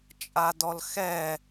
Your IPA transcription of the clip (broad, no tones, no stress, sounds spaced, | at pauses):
t͡ʃʼ a d ɔ l x ɛ